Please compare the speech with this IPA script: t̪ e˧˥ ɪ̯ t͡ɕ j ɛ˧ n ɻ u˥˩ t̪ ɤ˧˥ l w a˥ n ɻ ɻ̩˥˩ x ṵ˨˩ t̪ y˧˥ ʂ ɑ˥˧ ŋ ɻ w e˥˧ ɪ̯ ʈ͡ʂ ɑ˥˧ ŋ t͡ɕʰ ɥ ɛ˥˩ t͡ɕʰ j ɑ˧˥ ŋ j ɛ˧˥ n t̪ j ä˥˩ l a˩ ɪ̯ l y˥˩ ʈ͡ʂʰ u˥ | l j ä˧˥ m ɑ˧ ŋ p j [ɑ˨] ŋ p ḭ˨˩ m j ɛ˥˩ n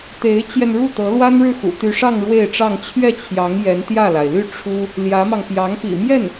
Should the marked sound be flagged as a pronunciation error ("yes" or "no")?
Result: yes